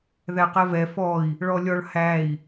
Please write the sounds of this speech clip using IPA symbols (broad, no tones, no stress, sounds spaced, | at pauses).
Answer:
ð æ q ɛ v ɛ f ɔ i̯ | ɭ ɔ lʲ ɔ ɭ h æ i̯